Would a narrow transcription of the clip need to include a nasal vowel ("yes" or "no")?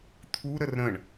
yes